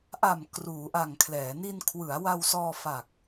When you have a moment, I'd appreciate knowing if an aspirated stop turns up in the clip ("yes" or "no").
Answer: yes